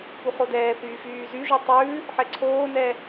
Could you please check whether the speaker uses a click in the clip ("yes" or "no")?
yes